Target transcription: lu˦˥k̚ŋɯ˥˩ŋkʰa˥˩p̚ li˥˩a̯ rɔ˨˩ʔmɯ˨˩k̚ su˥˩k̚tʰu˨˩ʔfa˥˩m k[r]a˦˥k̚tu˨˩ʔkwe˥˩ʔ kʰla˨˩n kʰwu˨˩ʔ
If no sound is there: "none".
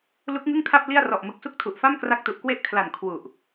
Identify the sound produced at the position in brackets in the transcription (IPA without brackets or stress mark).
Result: r